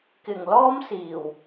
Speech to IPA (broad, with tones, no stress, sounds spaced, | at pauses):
k ɪ˨˩ ŋ l ɔː˥ m s iː˨˩ w